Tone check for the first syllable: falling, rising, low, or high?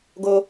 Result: high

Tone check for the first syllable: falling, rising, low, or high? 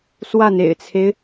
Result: falling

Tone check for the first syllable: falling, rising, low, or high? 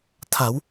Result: rising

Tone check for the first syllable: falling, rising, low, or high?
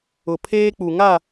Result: low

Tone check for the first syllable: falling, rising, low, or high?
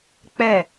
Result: falling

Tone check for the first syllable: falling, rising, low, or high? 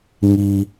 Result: low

